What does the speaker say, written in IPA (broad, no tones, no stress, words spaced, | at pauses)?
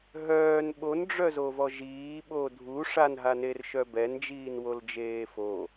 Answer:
ɦœːn ɓonɖ͡ʐœzovɔ ʒiːɓo dʱu ʂanɦanerʃœ bɛnd͡ʒiːnwold͡ʒeː fo